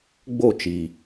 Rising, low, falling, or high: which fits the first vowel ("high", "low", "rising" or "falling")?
falling